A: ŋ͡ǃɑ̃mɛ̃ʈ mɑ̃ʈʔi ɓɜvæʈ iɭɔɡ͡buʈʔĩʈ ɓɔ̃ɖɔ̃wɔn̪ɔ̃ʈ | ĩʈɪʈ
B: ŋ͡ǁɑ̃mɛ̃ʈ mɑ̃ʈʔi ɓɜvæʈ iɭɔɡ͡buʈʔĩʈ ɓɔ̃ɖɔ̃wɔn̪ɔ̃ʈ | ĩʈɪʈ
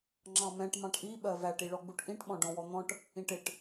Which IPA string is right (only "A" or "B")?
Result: B